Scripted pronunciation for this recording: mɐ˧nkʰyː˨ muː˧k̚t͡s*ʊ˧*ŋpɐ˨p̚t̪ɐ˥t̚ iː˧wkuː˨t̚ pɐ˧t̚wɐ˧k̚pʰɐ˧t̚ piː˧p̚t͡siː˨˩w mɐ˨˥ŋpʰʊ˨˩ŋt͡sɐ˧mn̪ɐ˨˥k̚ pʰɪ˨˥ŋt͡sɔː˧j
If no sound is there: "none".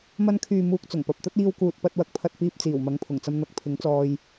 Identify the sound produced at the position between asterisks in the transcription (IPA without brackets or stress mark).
ʊ˨˩